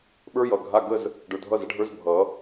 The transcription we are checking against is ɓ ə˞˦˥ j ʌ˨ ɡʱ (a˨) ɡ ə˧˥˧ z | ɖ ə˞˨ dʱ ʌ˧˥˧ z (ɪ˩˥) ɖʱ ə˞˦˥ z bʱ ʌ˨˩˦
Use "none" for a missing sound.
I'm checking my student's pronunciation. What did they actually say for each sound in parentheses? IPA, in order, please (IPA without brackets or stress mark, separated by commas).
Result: a˧˥˧, ə˩˥